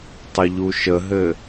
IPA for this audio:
tˤɘʎuʃəɦɘ

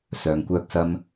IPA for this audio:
sœː˨ŋkʷœː˧k̚ sɐ˥m

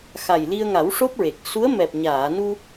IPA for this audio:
xa˨˩jli˧ə̯ŋa˨˩˦w ʂo˦˥p̚ɹe˨˩k̚ su˧˥ə̯mɛ˨˩p̚ɲaː˨˩˨nu˧

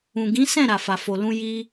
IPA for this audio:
ũ˨ɡĩ˨˦ sɛ̃˦˨ ɾa˨fa˨fo˨lũ˧ ji˧

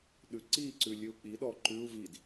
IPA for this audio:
ɗʉǀiǀʉ lʲʉu̯k͡piɗɔ ǃʉu̯ vid

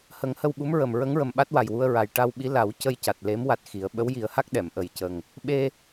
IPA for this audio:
hə˨˩˦ŋhə˧wɓu˧˥mɹə˨˩m ɹə˧˥ŋɹə˨˩mɓa˦˥t̚ wa˨˩jwu˧ə̯ɹa˨˩j ʈa˧wɓi˧˥la˨˩˦w cə˧jca˨˩t̚le˧˥m wa˦˥t̚xi˨˩˦ə̯ ɓə˧˥wji˨˩˦ə̯ha˦˥k̚ ɗɛ˨˩˨mʔə˨˩jcə˨˩ŋ | ɓe˧

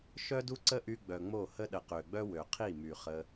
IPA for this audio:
ʃœ˦du˦ǀə˦ʔy˧ ɡ͡bœ˨ŋ͡mo˦˨hə˦ ɗə˨qø˨ɡ͡bœ˦ wø˨qʰi˦˨my˨ χə˧

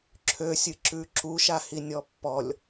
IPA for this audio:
ǁʰøsʲɨǁʉ ǁuʃahinʲɔ pːɔlʲ

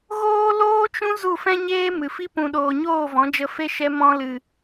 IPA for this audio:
ɣoː˦loː˦t͡ʃũ˦ zu˦˨fɛ̃˦ɲeː˦ mɨ˨fi˦ pũ˧ɗoː˧ ɲoː˦˨vɔ̃˨˦d͡ʒə˧ fe˦ʃɛ˦ mɔ̃˧lɨ˨

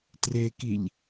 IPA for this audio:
trekiʎ

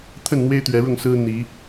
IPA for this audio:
t̪ʰə˥˨nn̪we˦ɪ̯ t̪ɥɛ˨˦ɻʊ˥˨ŋsɹ̩˦ n̪i˨˦

